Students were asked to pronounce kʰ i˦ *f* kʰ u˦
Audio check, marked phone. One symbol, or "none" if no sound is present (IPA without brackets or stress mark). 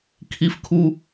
f